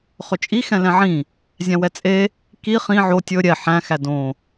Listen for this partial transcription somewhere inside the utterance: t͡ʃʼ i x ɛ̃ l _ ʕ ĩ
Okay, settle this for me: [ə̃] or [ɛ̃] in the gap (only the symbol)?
ɛ̃